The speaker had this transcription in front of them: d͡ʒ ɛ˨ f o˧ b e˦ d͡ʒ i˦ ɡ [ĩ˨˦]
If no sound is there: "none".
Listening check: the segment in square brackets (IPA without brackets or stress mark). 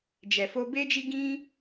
ĩ˦